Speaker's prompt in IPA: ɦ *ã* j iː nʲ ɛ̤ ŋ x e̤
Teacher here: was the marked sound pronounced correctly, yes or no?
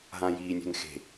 yes